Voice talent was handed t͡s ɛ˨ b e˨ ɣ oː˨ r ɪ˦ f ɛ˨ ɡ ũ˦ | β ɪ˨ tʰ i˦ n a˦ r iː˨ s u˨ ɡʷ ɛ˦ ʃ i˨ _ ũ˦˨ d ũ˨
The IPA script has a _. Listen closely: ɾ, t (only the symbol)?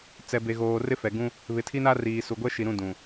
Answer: ɾ